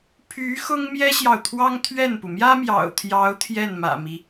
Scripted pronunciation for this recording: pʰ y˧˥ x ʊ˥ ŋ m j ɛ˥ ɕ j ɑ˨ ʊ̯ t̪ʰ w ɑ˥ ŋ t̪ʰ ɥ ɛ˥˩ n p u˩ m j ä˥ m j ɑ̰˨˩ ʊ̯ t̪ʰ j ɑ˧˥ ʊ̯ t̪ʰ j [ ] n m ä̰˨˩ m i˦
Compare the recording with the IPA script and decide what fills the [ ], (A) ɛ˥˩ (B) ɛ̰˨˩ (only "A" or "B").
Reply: A